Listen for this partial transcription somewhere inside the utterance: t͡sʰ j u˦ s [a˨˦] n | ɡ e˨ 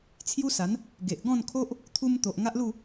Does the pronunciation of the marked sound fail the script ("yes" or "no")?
no